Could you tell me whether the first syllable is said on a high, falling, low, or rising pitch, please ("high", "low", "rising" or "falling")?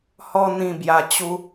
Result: high